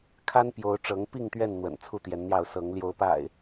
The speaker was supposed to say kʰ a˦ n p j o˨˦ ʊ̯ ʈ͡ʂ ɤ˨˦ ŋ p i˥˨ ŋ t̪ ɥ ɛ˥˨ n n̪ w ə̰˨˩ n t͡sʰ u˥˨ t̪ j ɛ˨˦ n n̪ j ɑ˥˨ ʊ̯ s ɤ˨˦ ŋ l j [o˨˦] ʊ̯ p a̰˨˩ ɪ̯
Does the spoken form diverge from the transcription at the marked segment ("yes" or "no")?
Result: no